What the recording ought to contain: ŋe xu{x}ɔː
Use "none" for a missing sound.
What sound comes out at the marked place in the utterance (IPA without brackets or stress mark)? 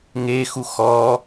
x